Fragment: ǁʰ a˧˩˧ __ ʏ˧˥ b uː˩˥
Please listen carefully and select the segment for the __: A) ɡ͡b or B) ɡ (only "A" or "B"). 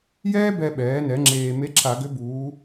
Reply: B